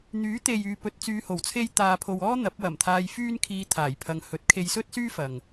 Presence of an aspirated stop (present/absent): present